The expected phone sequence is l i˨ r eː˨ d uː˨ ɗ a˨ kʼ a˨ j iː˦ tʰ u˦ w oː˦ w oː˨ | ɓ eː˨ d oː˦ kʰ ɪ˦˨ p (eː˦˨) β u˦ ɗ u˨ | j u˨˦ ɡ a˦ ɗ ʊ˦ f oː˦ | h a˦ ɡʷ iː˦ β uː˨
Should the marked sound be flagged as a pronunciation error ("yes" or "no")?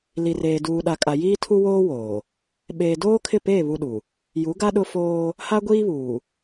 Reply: no